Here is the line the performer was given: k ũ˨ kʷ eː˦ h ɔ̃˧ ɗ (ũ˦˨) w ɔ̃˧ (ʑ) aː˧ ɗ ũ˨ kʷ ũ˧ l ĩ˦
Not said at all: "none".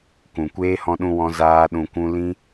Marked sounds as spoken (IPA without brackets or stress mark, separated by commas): ũ˧, z